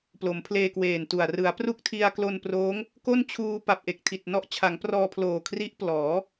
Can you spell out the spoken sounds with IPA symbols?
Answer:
p l o˩˦ m pʰ l eː˧ k w eː˨˩ n t u˨˩ a̯ r ɯ˩˦ a̯ p r u˥˩ k̚ tʰ i˧ a̯ k l o˧ n p r oː˦˥ ŋ | k o˥˩ n t͡ɕʰ uː˧ p a˨˩ p̚ ʔ e˨˩ k̚ tʰ i˨˩ t̚ n ɔ˦˥ ʔ t͡ɕʰ a˩˦ ŋ p r ɔː˧ pʰ l oː˨˩ kʰ r i˦˥ ʔ p l ɔː˩˦

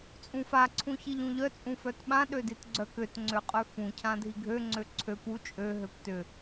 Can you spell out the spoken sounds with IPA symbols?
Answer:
t͡sʼ ũ f a ǀʰ ũ ç i ʎ ũ ʎ œ t͡sʼ ũ f œ t ɓ ã ɗ ø d i t ɡ͡ǀ œ k ø t ŋ͡ǀ ø qʼ œ f ũ cʰ ã dʱ i ɡʱ ø ŋ͡ǀ ø ǀʰ ø p u t͡ʃʼ ø ɦ ø p t ʏ

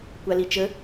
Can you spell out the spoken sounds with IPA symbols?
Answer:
kʷ a l i t͡ʃ ə

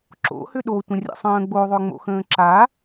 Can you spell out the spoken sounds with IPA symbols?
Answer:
ǁ o̰ h ʏ ɗ o tʷ ə̃ rʲ ə̰ sˤ ə̃ː ɡ͡b o ðˤ ʏ ŋ͡m o̰ x ə̃ː ǁ a

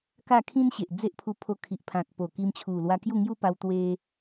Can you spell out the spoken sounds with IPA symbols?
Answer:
k a˥˧ kʰ ĩ˦ n ɕ e˨ ʔ d͡z e˦ ʔ pʰ u˧ pʰ o˧ kʰ i˨ ʔ pʰ ã˨ k̚ p o˨˩ k i˧ m t͡ɕʰ u˨˩ l w a˧ k j u˥˧ ŋ j u˦ p a˧ w t̪ w e˧

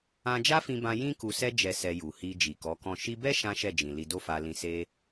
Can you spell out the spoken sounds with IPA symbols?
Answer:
ã˧ d͡ʒ a˦ f ĩ˧ b ã˧ j ĩ˦ k u˧ s ɛ˦ d͡ʒ ɛ˧ s ɛ˧ j u˨ h i˧ d͡ʒ i˨ k ɔ˨˦ k ɔ̃˦˨ ʃ i˧ b ɛ˦ ʃ ã˦ ʃ ɛ˦˨ d͡ʒ ĩ˨ l i˧ d o˦ f a˧ l ĩ˧ s e˦

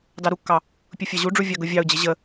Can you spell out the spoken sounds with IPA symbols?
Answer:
d ɑ ɾ u kː ɑ | pʲ ʊ fʲ ɑ ʑ u ɖ͡ʐ u vʲ ɑ ɡ ʊ vʲ ɑ ʊ̯ d͡ʑ ɪ ʑ ə

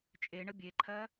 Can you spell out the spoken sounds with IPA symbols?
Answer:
t͡ʃʼ e ɳ ə bʲ e ǃʰ ɜ

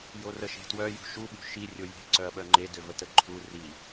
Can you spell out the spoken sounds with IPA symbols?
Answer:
j o r ə ʃ e̤ t w œ j ṳ ʃ u ɓ ṳ ʃ i rʲ o j e̤ ǀ œ ɐ̯ ɓ œ ŋ͡ǃ e d ø v ə t ə ǃʰ u r i

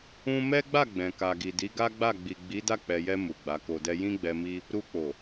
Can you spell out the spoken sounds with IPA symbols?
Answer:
ũ˦ m ɛ˦ ɡ͡b a˦˨ ɡ͡b ɛ̃˨ k a˨ ɡ i˨ d i˨˦ ɡ a˦ ɡ͡b a˦˨ ɡ͡b i˨ ɡ͡b i˨˦ d a˦˨ k͡p ɛ˨ j ɛ˧ m u˨ ɡ͡b a˨˦ k o˧ d ɛ˦ j ĩ˦ ɡ͡b ɛ˧ m i˦ | ɾ u˧ k͡p o˨

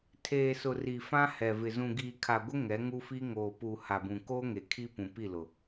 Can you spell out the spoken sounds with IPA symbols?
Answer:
tʰ eː˨ s ʊ˨ r i˨ f ã˦ h ɛ˨ v ɪ˨ z ũ˨ ɡ iː˨ kʰ a˨ ɡʷ ɪ˦ ŋ ɛ˨˦ ŋ u˦ f i˦ ŋ oː˨ p u˨ h a˨ b ũ˨ k oː˦ ŋ e˨ kʰ i˦ p ũ˨ p i˦˨ l ʊ˨

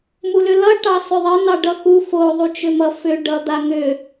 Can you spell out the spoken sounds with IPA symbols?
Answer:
m u l ʏ l ʌ ʈ ɑ s ʏ ðˤ ɘ n ɑ ɖ ʌ x u f o ðˤ u t͡ʃ ʏ m ʌ f ʏ ɖ ʌ d̪ a ŋ ʏ

